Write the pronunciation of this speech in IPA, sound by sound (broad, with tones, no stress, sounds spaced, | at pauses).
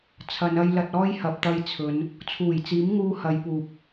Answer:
t͡sʰ ɐ˨˧ n ɐ˧ j l ɐ˧ t̚ ɔː˥ j h ɐ˨ p̚ t̪ ɐ˧ j t͡sʰ ɵ˨˧ n | t͡sʰ uː˨˩ j t͡s iː˨˥ m ŋ uː˧ h ɐ˨˧ j p uː˨ p̚